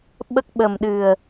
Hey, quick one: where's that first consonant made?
lips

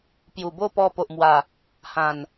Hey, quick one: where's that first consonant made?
lips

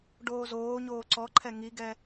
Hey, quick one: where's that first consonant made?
retroflex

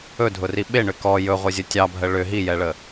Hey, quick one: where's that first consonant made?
tongue tip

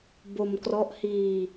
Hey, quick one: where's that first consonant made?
lips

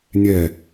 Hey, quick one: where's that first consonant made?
tongue tip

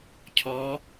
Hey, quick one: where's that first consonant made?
palate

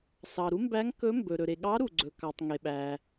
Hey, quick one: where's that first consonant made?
tongue tip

